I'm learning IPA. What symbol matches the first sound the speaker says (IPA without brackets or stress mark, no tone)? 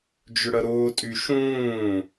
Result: d͡ʒ